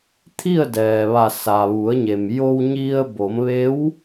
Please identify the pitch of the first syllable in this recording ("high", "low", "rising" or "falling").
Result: falling